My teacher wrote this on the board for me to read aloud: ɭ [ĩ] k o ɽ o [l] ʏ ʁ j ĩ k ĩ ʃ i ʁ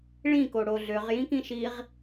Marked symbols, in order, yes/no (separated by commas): yes, no